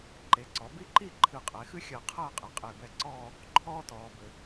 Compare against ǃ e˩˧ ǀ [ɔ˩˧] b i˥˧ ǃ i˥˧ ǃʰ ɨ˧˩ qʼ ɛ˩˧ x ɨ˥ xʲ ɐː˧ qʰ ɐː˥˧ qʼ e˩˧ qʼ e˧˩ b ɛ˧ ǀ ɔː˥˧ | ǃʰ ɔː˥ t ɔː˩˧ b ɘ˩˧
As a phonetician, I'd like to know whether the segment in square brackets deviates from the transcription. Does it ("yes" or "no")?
no